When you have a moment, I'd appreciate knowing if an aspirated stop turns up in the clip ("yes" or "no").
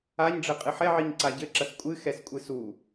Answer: no